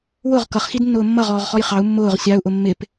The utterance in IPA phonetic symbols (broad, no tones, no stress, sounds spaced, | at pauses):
w ʊ ʁ k ʌ χ x i d nː ʊː mː ʌ ʁ ɔː ʁ χ ɔ j χ ɑ u̯ mː ʊː ʁ sʲ ɑ u̯ ʔ ʊ mː ɪ p